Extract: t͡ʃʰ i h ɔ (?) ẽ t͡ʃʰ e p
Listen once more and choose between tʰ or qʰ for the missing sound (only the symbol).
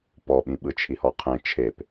qʰ